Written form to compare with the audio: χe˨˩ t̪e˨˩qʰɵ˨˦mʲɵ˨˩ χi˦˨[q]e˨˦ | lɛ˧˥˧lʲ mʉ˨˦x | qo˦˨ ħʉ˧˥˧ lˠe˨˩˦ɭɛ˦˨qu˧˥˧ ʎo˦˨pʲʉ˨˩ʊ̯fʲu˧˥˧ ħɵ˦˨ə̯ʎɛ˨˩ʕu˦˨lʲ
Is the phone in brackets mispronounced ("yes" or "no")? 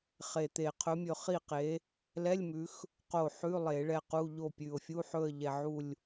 no